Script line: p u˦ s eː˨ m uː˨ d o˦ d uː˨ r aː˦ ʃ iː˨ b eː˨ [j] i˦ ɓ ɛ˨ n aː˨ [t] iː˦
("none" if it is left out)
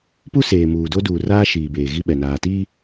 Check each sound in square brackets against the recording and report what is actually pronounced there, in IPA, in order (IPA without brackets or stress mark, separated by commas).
ɣ, t